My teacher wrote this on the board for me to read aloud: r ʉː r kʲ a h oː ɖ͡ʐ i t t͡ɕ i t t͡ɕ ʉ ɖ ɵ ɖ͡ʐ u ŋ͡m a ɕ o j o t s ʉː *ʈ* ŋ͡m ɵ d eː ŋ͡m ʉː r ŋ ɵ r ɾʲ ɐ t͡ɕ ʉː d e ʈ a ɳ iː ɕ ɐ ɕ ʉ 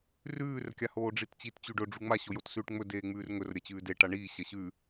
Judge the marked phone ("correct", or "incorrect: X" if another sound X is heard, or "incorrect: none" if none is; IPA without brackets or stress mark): correct